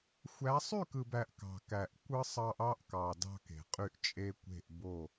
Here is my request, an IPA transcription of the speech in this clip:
xʷ æ˨˦ sˤ y˦˨ k ɯ˨ b æ˨ ʔ k ɑ̤˨ k æ˨ ʔ kʷ ɯ˦ sˤ ɑ˦ ʔ ɑ˦ ʔ k ɑ˨ d ɑ̤˦ k e̤˨ qʼ y˦ ʔ t͡ʃʼ e˦ kʷ e̤˦˨ ʔ b o˦˨

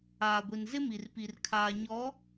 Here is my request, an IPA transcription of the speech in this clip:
aː˨ ɡʷ i˨ n z ɪ˦ m i˨ r p i˨ r kʰ aː˨ ɲ ɔ˨˦

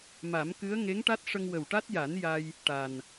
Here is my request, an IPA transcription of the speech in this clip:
m a˨˩˦ m k ɨ˧˥ ə̯ ŋ e˧˥ ŋ ʈ a˦˥ t̚ ʂ ə˧ ŋ w ə˨˩ w ʈ a˦˥ t̚ j a˨˩˦ n j a˧ j | ʈ a˨˩ n

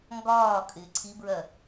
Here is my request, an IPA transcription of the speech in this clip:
ŋ ɡ ɒː kʼ ɪː ǀʰ i b ɹ ɜ

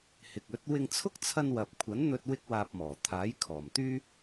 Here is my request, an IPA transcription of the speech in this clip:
h ɪ˨ k̚ ɵ˨˥ t̚ w ɪ˧ ŋ t͡sʰ ʊ˥ k̚ t͡sʰ ɐ˧ n w ɐ˨ p̚ kʷʰ ɐ˨˥ n n̪ ɵ˧ t̚ w ɪ˥ k̚ w aː˧ p̚ m ɔː˨˩ t̪ʰ aː˨˥ j kʰ ɔː˨˩ m t̪ yː˥

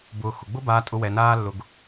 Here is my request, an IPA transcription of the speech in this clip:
b ʊː˨ x ʊ˩ ɡ͡b ʊ˥ b aː˨ tʼ ʊ˨ w ɛ˩ n aː˦ lː ʊ˨ ɡ

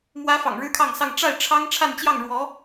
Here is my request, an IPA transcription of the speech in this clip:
m w ä˥ f ɑ̰˨˩ ŋ ɻ ɻ̩˥ kʰ ɑ˥˧ ŋ s ɑ˥˧ ŋ ʈ͡ʂ a˥˩ ɪ̯ ʈ͡ʂʰ ɑ˥ ŋ ʈ͡ʂʰ a˥˧ n t͡ɕ j ɑ˥˩ ŋ ɻ w ɔ˧˥

